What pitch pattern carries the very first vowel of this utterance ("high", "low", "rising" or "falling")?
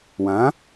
rising